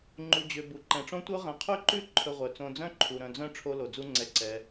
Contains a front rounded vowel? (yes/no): yes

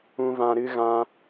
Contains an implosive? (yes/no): no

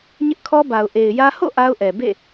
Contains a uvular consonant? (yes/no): no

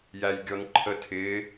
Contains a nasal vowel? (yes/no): no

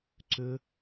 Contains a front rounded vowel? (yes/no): yes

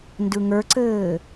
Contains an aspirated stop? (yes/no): no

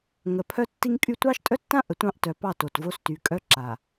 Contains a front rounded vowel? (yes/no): yes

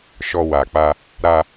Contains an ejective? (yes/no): no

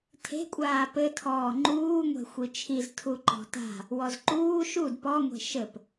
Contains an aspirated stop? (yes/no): yes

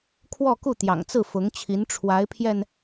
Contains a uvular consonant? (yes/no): no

